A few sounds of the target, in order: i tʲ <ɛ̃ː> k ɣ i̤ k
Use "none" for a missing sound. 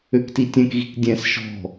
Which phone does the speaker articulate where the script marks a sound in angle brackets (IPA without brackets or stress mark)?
ɛ̃